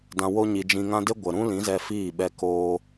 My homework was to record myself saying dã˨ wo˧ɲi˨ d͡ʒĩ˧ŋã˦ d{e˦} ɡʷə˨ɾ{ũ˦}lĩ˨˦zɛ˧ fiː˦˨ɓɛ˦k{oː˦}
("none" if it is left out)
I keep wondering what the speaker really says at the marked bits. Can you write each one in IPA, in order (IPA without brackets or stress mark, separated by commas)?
e˦, ũ˦, oː˦